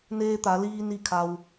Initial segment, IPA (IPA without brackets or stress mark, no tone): n